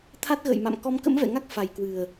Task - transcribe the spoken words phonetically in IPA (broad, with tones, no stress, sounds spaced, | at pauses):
t̪ʰ a˦˥ t̚ ɣ ə̰ː˧˨ j m a̰˧˨ m k ɔ˨˦ m k ə̰˧˥ m v ɛ̰˧˨ ŋ a˦˥ k̚ f a˨˩ j k w ɨ˨˩ ə̯